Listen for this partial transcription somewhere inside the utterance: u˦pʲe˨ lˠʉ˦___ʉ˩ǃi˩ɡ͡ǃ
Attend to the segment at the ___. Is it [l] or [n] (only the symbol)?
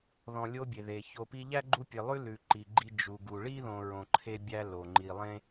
l